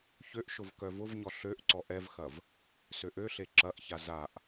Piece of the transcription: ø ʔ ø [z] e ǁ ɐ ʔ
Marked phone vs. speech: incorrect: ɬ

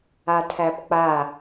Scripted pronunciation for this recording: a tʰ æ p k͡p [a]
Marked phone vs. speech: correct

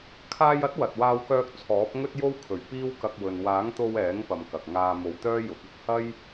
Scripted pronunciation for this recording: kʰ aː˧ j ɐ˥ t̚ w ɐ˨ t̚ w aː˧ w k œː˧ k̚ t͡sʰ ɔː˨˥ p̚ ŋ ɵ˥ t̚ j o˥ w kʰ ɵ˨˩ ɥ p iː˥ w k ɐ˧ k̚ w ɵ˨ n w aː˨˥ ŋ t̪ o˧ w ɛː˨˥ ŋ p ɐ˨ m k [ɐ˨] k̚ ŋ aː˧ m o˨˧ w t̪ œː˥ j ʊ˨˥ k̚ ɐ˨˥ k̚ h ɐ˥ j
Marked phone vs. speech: correct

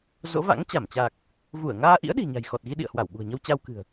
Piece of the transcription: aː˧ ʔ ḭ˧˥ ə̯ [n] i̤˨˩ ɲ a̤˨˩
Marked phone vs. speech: incorrect: ɗ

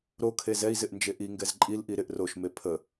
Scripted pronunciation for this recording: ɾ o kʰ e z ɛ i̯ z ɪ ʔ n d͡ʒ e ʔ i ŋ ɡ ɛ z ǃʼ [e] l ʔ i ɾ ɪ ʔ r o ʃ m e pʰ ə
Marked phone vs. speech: incorrect: i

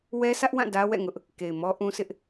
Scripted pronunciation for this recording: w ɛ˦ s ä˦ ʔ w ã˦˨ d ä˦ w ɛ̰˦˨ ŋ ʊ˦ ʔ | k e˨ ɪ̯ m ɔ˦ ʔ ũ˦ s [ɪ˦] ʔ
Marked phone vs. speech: correct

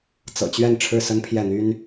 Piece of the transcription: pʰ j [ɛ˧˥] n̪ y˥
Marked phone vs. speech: incorrect: ɛ˥˩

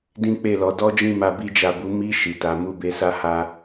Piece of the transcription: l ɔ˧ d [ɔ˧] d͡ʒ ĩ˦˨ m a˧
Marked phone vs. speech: incorrect: ɔ˦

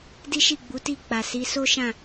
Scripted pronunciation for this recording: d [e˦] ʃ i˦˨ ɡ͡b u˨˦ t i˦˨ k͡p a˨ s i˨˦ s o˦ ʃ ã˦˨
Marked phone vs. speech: incorrect: i˦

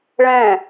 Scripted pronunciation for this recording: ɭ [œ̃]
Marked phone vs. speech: incorrect: ɛ̃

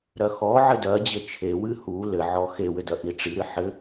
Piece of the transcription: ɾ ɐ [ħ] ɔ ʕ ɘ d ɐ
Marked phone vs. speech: incorrect: x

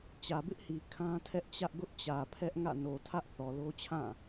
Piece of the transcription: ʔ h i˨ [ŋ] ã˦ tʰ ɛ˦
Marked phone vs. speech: incorrect: kʰ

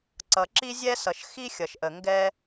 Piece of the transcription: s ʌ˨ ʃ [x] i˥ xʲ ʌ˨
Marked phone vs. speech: correct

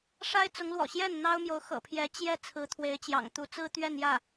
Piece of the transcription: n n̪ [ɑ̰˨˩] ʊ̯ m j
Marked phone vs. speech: incorrect: ɑ˥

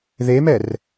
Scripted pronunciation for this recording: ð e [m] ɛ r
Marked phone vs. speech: correct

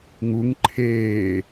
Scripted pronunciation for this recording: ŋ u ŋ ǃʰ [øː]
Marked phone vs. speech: incorrect: eː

